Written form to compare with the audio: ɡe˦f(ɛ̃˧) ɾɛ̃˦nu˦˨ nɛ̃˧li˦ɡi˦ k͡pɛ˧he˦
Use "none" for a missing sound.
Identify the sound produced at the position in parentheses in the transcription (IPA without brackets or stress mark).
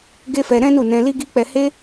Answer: ɛ˧